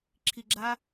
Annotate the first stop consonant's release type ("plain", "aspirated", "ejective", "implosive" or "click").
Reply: click